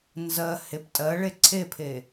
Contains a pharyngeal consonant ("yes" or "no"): no